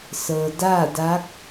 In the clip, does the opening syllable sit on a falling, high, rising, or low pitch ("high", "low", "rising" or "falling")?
low